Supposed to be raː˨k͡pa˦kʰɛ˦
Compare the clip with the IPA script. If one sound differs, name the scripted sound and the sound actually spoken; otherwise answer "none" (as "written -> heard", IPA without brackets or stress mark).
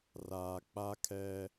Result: none